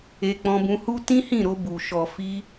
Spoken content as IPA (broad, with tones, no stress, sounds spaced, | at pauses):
e˧ k͡p ɔ̃˧ b ũ˧ h u˦ t ĩ˦ h ĩ˦˨ ɾ o˧ b u˨ ʃ ɔ˨ f i˧